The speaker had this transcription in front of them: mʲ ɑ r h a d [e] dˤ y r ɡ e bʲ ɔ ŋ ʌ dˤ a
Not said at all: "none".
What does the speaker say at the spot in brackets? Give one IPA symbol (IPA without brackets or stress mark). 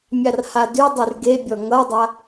y